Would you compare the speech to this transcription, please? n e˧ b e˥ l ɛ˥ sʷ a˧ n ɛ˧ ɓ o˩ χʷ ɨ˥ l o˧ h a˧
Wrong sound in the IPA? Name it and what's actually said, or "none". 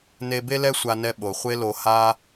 ɨ˥ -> e˥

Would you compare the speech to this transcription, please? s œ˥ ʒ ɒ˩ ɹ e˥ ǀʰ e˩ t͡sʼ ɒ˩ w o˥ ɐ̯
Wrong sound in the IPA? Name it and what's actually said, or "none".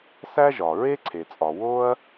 œ˥ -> æ˥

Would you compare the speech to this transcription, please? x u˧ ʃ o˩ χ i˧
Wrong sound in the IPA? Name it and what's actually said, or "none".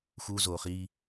ʃ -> z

